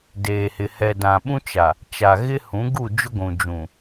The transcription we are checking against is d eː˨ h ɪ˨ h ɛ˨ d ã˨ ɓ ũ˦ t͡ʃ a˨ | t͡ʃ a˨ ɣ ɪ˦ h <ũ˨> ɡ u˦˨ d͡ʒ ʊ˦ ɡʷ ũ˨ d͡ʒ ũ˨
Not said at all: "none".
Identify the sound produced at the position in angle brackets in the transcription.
ũ˨˦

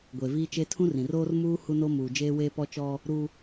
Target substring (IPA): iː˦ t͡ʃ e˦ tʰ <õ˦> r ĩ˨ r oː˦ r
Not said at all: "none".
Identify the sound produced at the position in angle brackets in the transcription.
ũ˦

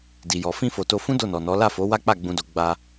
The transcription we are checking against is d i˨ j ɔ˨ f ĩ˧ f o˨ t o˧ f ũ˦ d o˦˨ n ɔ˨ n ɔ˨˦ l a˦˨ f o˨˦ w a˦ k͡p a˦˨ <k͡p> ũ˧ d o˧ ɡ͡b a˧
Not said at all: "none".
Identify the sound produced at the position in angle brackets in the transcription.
ɡ͡b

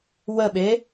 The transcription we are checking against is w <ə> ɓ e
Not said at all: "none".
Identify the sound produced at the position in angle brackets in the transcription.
ə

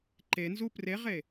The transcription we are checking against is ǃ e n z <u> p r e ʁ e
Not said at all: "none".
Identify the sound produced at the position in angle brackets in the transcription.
u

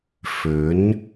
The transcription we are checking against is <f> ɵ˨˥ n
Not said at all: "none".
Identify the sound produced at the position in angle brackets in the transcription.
f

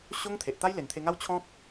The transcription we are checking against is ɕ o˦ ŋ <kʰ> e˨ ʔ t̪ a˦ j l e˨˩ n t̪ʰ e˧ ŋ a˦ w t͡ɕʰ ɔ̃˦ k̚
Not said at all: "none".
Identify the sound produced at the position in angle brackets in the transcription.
t̪ʰ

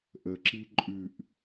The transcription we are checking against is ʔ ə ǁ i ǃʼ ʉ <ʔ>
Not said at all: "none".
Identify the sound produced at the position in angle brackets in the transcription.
ʔ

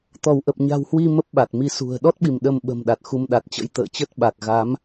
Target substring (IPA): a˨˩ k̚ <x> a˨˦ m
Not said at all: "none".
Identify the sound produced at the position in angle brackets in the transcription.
ɣ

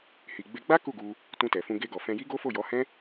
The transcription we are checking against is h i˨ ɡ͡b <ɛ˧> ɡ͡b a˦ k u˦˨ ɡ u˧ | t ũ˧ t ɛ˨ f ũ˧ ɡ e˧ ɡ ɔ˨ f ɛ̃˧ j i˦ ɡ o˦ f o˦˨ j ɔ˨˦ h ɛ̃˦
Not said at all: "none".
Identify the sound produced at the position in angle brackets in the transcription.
e˧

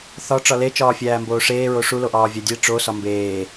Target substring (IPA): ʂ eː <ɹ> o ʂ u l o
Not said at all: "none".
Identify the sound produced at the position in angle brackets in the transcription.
ɹ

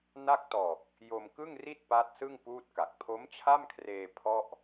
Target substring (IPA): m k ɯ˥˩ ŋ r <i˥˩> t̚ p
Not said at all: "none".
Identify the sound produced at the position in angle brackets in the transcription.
i˥˩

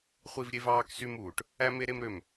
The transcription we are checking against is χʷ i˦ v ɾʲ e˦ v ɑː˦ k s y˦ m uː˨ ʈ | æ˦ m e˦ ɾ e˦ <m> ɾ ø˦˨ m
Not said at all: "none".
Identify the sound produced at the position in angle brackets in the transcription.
m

